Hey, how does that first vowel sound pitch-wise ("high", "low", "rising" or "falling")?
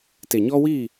low